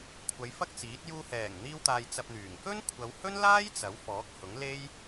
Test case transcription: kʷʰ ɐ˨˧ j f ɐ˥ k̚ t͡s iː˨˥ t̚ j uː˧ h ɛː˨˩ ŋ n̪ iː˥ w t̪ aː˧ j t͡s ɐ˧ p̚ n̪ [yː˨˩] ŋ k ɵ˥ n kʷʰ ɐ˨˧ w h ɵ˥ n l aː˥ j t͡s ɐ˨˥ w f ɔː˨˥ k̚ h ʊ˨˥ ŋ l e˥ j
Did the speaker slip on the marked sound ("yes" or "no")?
no